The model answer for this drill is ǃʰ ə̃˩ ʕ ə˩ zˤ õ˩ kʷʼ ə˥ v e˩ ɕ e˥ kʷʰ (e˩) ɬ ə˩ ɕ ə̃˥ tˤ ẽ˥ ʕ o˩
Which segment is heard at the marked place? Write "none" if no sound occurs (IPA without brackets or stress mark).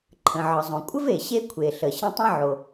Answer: e˩